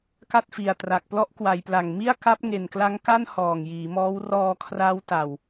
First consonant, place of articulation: velar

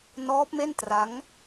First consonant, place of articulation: alveolar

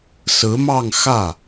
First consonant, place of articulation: alveolar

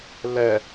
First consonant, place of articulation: alveolar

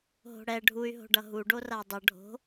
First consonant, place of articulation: glottal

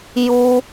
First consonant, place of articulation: palatal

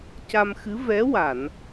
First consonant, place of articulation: palatal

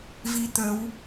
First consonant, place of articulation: labial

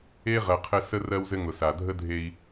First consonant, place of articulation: uvular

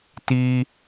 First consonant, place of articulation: alveolar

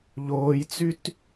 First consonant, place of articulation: palatal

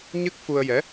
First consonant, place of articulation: palatal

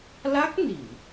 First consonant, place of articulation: alveolar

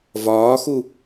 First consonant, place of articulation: labial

